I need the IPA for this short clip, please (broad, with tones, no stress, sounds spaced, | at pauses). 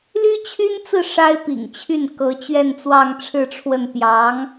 l y˥ t͡ɕʰ y˥ n t͡s ɹ̩˥˩ ʂ a˥ ɪ̯ p ḭ˨˩ ŋ t͡ɕʰ y˥˩ n k ɤ˧˥ t͡ɕ ɥ ɛ˥˧ n t͡s w ɑ˥˧ ŋ ʈ͡ʂʰ ɻ̩˥˧ ʈ͡ʂʰ w ə˥˩ n p j ɑ˧˥ ŋ